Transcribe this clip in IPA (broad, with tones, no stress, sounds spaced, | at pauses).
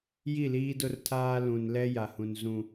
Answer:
j i˦˨ l iː˦ d ʊ˦ r tʰ aː˦ l ũ˨ n l ɛ˦ j a˨ h ũ˨ n z ũ˨